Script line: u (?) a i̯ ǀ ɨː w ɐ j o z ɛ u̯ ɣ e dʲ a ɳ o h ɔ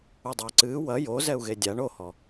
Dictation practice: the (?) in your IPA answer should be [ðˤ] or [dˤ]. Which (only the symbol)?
dˤ